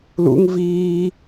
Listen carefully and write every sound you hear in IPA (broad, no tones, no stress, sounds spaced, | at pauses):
l ṵ ŋ v iː